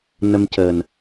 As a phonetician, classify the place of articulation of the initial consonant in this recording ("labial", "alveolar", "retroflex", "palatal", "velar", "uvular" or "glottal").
alveolar